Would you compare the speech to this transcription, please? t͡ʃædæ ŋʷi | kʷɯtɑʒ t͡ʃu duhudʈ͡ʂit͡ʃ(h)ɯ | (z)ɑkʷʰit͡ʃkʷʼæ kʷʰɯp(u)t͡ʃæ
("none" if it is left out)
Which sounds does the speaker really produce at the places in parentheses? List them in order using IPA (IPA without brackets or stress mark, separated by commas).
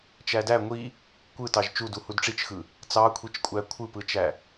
x, t͡s, ɯ